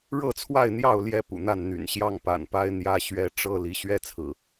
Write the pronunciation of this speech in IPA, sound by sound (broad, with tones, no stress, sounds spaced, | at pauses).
ɻ ɤ˥˨ t͡sʰ w a˥˨ ɪ̯ n̪ j ɑ˥˨ ʊ̯ l j ɛ˦ p ṵ˨˩ n̪ a˥˨ n n̪ y̰˨˩ n ɕ j ɑ˥˨ ŋ p a̰˨˩ n p a˦ ɪ̯ n̪ j ä˦ ɕ ɥ ɛ˦ ʈ͡ʂ ɤ˦ l i˨˦ ɕ ɥ ɛ˦ t͡sʰ ɹ̩˨˩